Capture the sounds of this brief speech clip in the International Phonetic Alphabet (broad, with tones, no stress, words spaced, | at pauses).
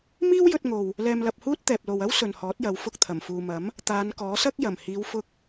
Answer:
miː˥wjɵ˧t̚ŋo˨w | lɛː˧mlɐ˧p̚huː˥t̚ t̪ɛː˨p̚lo˨wɐ˥w sɵ˨nhɔː˨˥t̚jɐ˨˧w fʊ˧k̚t̪ʰɐ˨˩mfuː˨mɐ˨˥m | t̪aː˨˧nkɔː˨˥sɐ˥k̚ jɐ˨˩mhiː˨˧wfʊ˧k̚